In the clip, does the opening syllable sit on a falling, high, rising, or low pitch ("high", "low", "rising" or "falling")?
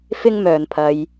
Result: high